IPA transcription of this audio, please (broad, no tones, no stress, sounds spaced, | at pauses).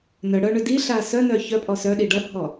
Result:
n œ ɽ œ ɳ ʏ d i ɬ a s œ n œ ç œ pʼ ɔ s œ ɗ i ɖ ʌ bʱ ɔ